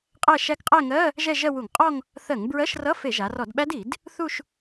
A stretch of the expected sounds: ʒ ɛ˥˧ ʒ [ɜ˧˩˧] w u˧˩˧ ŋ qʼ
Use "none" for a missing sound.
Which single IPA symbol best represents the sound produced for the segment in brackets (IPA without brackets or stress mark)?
ɜ˥˧